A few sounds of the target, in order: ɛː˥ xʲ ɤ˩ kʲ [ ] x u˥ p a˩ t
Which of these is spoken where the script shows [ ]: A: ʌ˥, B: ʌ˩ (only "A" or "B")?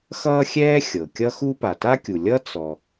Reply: A